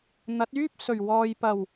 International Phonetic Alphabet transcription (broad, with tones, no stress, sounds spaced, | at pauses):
n̪ ɐ˨˥ t̚ yː˥ p̚ s ɵ˨˩ ɥ w ɔː˨ j p ɐ˨˩ w